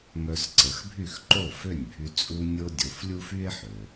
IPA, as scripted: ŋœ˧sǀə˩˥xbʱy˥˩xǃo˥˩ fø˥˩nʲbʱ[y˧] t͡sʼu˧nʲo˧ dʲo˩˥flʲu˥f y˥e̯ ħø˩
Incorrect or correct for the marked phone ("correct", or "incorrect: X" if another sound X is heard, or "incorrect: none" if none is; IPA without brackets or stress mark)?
correct